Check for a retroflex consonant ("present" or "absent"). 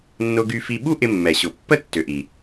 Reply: absent